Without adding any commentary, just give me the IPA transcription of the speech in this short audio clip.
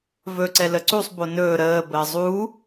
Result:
vɵ ǀɛləǀusˤ bonɵː ɾəː bəːzˤu

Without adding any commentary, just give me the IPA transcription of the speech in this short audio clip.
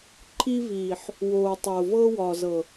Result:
ǃʰi˦viː˨ħ | woː˨tˤoː˨ vɤː˦wɒː˨zɤ˨

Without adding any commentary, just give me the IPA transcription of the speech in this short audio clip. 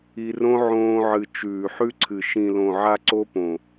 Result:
i˧rõ˦ ʕõː˧ʕɨ˨ t͡ʃʉː˨ħʉ˦ǀʰɨ˨ ʃĩ˨lõ˨ ʕa˦ǀo˦põ˨

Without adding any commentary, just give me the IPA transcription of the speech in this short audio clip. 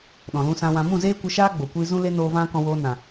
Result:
ɗɔ̃˨lũ˧sã˧wã˧ mũ˦˨zeː˦kʷə˧ʃaː˦ ɡ͡bo˨kʷiː˦ zũ˦le˦noː˧ vã˦kɔ̃˧ woː˧nã˨

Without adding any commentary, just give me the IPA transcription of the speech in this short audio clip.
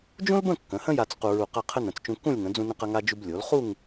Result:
d͡ʒũ˥lbə̃˥˧ kːə̃˩˧hə̃˥ja˧t͡s qu˧ɹu˧˩qa˥˧qʰə˥ nə̃˩˧t͡st͡ʃũ˧kːũ˥˧lʲŋə̃˩˧ d͡zũ˧nə̃˧qɐ˧ ŋa˧d͡ʒu˧b lʲo˩˧lχu˥˧ŋ

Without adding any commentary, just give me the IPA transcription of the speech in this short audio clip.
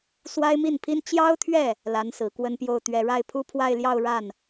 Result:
swa˥ɪ̯mi˥˩npʰi˥n t͡ɕjɑ˥ʊ̯t̪ʰɥɛ˥˩ | la˧˥nsɹ̩˨˩kwə˥˧npjo˥˩ʊ̯ t̪ɥɛ˨˩ɻa˥˩ɪ̯pʰu˥ pʰwa˥˧ɪ̯ljɑ˥˧ʊ̯ɻa˥˩n

